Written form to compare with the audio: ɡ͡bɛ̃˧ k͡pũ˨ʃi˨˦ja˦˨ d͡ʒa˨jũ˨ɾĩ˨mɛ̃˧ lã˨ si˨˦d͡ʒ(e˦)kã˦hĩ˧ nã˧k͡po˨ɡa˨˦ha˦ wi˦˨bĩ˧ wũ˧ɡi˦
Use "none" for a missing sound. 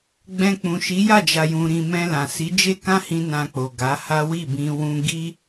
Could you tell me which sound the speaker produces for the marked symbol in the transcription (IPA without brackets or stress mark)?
e˦